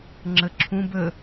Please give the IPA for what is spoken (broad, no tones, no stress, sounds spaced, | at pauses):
ŋ͡ǁ ə ǁʰ ũ b ə